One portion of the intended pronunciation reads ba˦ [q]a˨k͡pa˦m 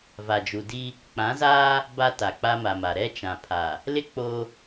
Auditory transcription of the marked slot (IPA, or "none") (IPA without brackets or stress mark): t